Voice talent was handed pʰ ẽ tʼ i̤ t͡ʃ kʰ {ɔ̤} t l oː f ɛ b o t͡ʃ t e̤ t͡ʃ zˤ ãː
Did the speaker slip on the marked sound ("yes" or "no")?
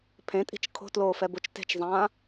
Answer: yes